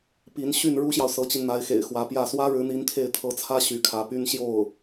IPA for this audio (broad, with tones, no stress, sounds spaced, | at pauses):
p i˧˥ n ɕ y˥˩ n ɻ u˥ ɕ j ɑ˨ ʊ̯ s ɤ˧˥ t͡ɕ i˧ n n̪ a˧˥ ɪ̯ x ḛ˨˩ ɪ̯ x w ä˧˥ p j ä˥˩ s w ä˥ ɻ ɻ̩˧˥ n̪ i˧˥ n t̪ʰ e˥˩ ɪ̯ t̪ʰ ɤ˧˥ t͡sʰ ä˥ ɕ y˧˥ kʰ ä˧˥ p y˥ n ɕ j o˥˩ ʊ̯